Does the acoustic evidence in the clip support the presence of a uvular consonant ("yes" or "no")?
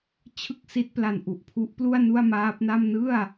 no